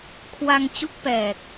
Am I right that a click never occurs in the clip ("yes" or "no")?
yes